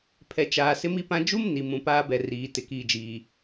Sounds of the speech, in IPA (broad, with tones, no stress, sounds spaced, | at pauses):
pʰ ɛ˨ t͡ʃ aː˨ s ɪ˦ m i˦ p ã˦ d͡ʒ u˦ m n i˨ m ũ˨ p aː˦ b ɛ˨ r iː˨˦ t ɪ˨ k iː˨ d͡ʒ iː˨